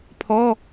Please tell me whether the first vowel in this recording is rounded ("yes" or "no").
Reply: yes